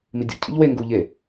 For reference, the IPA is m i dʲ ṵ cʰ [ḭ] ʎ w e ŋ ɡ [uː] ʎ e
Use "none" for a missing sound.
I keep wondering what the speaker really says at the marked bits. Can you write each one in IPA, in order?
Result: ḭ, uː

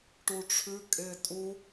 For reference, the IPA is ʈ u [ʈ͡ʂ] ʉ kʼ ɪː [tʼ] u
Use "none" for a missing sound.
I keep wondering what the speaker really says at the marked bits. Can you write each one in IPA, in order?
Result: ʈ͡ʂʰ, tʼ

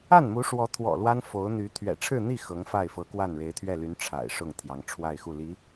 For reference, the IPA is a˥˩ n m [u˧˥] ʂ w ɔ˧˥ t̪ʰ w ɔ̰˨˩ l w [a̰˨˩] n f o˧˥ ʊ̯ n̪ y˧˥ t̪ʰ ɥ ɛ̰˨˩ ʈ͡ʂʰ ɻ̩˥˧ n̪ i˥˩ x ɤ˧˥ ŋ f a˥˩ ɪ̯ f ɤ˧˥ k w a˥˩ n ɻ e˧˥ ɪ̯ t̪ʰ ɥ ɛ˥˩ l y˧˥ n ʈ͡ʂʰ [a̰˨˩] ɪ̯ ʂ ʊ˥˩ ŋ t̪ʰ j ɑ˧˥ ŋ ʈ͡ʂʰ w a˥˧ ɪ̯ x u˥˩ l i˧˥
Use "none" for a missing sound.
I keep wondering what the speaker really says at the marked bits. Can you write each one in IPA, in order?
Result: u˧˥, a˥, a̰˨˩

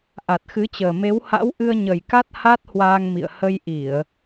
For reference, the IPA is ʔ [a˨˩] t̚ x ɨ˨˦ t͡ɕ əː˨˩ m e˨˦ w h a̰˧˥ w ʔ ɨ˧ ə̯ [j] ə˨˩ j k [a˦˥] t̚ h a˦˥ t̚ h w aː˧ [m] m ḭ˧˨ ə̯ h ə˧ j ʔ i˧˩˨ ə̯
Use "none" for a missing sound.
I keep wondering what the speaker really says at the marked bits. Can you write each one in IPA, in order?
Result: a˨˩, ɲ, a˦˥, ŋ

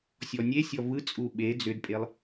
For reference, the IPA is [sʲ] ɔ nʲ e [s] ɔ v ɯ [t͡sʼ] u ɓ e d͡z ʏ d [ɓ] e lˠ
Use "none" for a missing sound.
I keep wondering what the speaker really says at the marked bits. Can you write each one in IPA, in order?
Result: sʲ, sʲ, t͡sʼ, pʼ

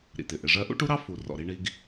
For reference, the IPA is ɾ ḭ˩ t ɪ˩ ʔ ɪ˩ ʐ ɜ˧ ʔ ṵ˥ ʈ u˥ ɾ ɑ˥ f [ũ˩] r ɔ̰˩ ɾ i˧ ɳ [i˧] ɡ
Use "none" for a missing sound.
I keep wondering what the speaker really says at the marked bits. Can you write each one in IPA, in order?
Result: u˩, i˧

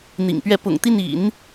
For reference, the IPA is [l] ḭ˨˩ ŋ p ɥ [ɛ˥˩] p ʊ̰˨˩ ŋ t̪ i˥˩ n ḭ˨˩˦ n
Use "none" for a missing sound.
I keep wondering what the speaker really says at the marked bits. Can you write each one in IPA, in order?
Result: n̪, ɛ˥˩

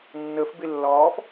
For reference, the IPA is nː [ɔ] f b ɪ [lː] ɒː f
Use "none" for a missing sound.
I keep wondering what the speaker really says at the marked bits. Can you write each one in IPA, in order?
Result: ə, lː

